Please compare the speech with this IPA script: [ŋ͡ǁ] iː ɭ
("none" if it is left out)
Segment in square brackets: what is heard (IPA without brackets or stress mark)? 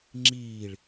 ŋ͡ǁ